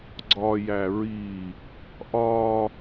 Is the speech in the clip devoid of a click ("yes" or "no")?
no